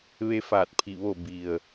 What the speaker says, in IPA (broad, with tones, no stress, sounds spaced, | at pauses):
ʋ e˧ f aː˧˩ t̚ pʰ i˧˩ ʋ o˧˩ b i˩ ə̯